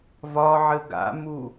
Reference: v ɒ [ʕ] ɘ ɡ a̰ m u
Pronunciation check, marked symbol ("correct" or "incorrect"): correct